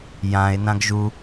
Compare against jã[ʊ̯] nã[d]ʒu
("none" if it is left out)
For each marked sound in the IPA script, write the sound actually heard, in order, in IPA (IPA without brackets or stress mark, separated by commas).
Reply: ɪ̯, ɡ